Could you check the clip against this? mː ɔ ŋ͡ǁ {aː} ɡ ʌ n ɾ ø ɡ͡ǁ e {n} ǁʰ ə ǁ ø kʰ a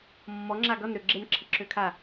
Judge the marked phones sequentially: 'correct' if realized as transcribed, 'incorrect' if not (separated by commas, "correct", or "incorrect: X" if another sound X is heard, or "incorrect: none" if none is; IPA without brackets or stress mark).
incorrect: a, correct